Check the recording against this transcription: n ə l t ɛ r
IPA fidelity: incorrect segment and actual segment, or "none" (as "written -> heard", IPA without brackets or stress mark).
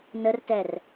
l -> r